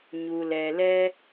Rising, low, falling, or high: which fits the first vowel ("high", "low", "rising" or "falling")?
low